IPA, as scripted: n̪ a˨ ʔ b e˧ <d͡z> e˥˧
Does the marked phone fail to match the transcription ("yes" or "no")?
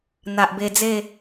no